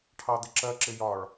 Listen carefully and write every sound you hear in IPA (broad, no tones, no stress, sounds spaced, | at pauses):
ʈʰ ɑ d̪ ɪ ǁ ɜ ǁ ɪ j ɒ ɭ